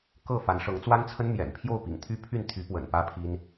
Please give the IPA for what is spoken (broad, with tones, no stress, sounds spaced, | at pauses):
k ɤ˥˩ f a˧˥ n ʂ ɤ˧˥ ŋ t͡s w a˥ n t͡sʰ ə˥ n m j ɛ̰˨˩ n pʰ j o˥˩ ʊ̯ p ḭ˨˩ ŋ t̪ʰ y˥ pʰ y˥˩ n t̪ʰ y˧˥ p w ə̰˨˩ n p ä˥ pʰ i˥ n